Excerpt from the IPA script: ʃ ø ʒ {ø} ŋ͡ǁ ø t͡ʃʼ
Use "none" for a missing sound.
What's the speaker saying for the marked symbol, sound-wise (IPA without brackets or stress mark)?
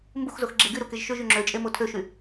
y